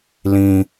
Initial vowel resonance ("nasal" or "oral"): nasal